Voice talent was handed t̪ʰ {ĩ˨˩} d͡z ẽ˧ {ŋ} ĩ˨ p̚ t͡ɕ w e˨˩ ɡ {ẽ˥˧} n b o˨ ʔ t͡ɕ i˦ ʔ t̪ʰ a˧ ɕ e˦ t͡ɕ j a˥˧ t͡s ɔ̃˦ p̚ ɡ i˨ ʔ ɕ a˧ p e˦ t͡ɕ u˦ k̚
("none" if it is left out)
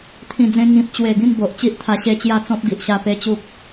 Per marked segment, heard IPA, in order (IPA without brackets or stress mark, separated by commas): ĩ˨˩, ŋ, ĩ˥˧